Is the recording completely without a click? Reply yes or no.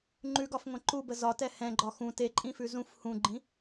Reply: no